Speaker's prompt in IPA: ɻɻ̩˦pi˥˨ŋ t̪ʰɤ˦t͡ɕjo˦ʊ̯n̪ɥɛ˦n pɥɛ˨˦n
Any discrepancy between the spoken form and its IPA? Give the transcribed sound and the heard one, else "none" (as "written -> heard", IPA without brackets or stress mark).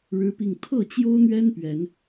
ɤ˦ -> ɤ˥˨